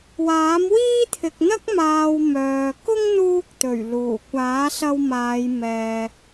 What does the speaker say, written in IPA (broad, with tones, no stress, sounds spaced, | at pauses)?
w aː˨˥ m w iː˥ t̪ʰ ɪ˨ k̚ n̪ ɐ˥ k̚ m aː˨ w m œː˨ k ʊ˥ ŋ n̪ uː˧ k̚ t̪ ɵ˨˩ ɥ l uː˨˩ kʷ aː˨˥ s ɐ˧ w m aː˨˧ j m ɛː˨